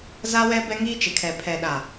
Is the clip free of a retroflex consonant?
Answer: yes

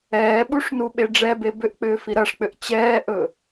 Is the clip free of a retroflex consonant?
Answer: no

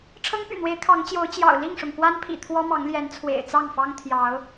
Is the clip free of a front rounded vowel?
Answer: no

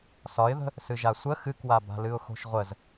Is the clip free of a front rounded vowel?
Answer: yes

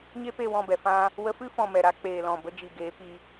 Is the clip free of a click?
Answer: yes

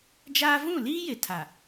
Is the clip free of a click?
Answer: yes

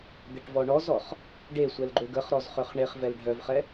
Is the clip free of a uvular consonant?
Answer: no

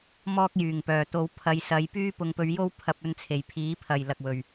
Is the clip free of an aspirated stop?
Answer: no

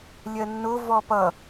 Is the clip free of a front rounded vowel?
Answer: yes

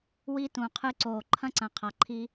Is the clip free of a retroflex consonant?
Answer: yes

